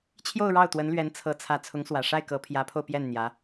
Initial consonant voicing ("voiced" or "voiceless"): voiceless